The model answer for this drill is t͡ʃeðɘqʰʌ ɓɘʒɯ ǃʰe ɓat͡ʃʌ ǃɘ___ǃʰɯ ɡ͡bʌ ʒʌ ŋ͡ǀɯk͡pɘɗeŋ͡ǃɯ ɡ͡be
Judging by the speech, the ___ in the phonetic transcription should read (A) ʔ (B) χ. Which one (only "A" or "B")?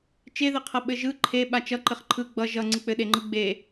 B